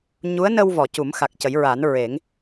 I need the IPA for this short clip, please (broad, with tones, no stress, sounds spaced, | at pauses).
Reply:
ɲ u˧˥ ə̯ n ə˧ w v ɔ˨˩˨ c u˨˩˦ m x a˨˩ k̚ c ə˨˩˦ j ɹ a˨˩˦ n ɹ e˨˩˦ ŋ